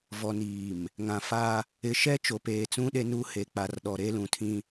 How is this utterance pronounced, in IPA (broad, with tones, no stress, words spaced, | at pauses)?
vɔ˨niː˨m | ŋã˨fa˦ | ɪ˨ ʃɛ˦t͡ʃo˨peː˨t͡sũ˦ ɗe˦nu˦ he˨k͡pa˨rɗɔ˨ ɾe˦lũ˨tʰĩ˦